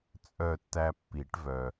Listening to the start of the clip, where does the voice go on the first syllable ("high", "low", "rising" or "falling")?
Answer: falling